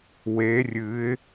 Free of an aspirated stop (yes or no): yes